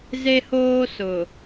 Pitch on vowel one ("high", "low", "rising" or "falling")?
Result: high